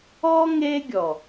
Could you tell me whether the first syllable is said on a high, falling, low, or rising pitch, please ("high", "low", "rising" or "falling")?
high